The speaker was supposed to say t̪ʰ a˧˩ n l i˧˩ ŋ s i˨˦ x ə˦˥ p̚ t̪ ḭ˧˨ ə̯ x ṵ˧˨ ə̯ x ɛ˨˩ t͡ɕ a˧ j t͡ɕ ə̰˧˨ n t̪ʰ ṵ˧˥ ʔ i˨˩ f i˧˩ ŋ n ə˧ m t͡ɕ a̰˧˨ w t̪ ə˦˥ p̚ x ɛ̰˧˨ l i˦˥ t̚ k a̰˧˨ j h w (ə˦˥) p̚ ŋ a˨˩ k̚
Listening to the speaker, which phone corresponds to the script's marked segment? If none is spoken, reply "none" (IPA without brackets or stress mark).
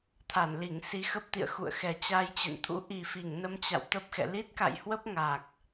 ə˦˥